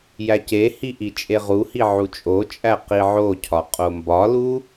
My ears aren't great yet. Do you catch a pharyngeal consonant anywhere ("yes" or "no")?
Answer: yes